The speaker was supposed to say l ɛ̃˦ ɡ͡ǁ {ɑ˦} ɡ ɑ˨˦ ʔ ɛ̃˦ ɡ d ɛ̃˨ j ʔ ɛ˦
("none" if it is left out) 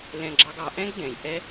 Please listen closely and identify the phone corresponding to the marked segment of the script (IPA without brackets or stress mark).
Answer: ɑ˦